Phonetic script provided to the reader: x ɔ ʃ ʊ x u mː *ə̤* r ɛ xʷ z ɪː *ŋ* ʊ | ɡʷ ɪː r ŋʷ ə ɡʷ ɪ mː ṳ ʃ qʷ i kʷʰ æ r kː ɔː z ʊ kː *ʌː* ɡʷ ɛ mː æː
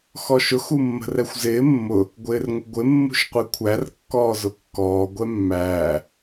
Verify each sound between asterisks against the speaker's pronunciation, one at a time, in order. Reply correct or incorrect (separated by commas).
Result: correct, incorrect, incorrect